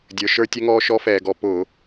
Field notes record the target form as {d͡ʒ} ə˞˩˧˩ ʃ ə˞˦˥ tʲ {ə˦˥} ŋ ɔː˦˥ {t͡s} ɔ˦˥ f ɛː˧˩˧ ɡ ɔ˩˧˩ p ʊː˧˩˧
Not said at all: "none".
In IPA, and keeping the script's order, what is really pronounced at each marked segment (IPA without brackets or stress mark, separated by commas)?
dʲ, ɛ˦˥, ʃ